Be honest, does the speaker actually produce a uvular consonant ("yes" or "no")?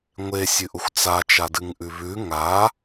no